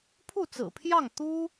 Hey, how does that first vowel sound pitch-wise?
falling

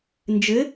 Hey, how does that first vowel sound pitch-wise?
rising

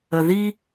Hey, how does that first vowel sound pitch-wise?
low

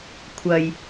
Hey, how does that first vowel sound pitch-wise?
low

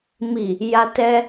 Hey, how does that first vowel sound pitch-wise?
low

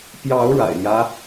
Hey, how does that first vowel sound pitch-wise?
rising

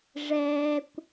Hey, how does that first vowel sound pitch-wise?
high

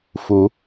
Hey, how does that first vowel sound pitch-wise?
rising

